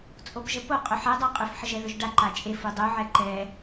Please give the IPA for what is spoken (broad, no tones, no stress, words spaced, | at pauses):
t͡sʼopʒəpo qʼɵħɛ dˤaqʼɵf ħəʒɛðɵʒɖa ǃat͡ʃʼef udˤu ʕɛǃɛ